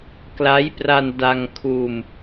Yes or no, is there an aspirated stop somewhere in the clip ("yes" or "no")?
yes